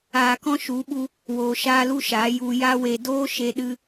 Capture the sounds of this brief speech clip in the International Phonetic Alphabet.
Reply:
aː˧ k ɔ̃˦ ʃ u˨˦ ɓ u˧ | w oː˧ ʃ aː˦ l u˦ ʃ aː˨˦ j u˧ j a˦ w e˧ d oː˦ ʃ e˧ ɗ ɨ˧

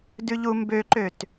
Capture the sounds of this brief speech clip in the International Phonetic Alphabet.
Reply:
d ʉ ʎ u m b ø ǃ ø t

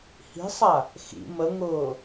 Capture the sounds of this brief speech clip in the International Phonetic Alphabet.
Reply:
h i̤ sˤ a | x ḭ m ə ŋ ʊː

